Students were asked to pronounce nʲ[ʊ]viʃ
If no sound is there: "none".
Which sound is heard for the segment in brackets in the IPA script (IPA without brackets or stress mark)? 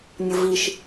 ʊ